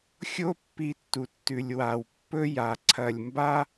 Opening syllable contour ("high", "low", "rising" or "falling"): high